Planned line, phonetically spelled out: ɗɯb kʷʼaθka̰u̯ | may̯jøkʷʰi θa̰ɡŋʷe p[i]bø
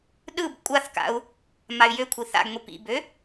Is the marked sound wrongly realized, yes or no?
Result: yes